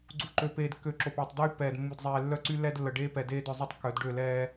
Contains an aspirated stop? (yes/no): no